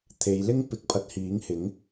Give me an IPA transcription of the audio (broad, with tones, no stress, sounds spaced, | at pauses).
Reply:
t̪ʰ e˨˧ j l ɪ˥ ŋ p ɪ˨˥ k̚ pʰ ɐ˨˥ t̚ h iː˨˥ ŋ h ɪ˨˥ ŋ